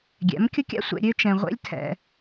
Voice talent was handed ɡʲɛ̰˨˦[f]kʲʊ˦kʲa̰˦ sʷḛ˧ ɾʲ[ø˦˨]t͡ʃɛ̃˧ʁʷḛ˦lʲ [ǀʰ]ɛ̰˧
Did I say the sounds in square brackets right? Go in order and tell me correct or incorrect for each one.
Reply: incorrect, incorrect, incorrect

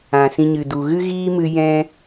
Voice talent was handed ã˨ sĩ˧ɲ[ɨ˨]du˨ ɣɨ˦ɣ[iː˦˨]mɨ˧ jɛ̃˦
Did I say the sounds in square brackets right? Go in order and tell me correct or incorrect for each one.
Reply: correct, incorrect

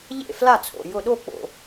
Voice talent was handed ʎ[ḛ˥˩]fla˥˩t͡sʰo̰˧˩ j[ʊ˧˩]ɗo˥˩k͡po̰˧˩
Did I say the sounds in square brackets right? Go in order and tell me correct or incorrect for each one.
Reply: correct, correct

